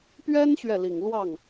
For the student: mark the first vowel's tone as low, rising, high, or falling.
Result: high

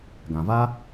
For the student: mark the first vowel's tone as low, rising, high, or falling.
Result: low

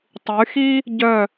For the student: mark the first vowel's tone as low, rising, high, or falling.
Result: rising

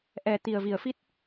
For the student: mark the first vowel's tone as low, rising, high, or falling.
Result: low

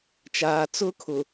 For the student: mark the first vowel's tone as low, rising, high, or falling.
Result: low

